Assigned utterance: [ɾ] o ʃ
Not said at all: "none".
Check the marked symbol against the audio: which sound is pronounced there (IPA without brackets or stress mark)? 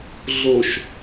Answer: ɮ